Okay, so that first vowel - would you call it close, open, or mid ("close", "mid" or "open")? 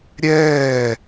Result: mid